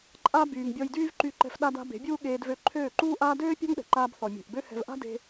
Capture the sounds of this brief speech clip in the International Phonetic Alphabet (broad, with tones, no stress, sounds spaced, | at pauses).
ǃʼ a˦ b yː˨ ŋ bʲ ɔ˧ j d yː˦ v ǃ y˧ ǃ ɛ̤˧ f ɗ a˧ d a̤˧ b e̤˨˦ bʲ uː˦ ɠ eː˧ d v ø˧ ǃʰ øː˦˨ ǃ uː˦ ʔ aː˦ d øː˦ pʲ a̤˦ ŋ ɗ ɛ̤˨ ǃ aː˧ b θ ɔ˨ mʲ e̤˨ ʔ b ø˦ h ɛ̤˧ v ʔ a̤˦ d e̤˧